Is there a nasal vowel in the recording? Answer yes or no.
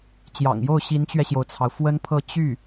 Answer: no